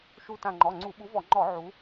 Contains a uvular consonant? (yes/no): no